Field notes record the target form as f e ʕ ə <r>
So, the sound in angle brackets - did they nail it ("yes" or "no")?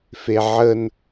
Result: no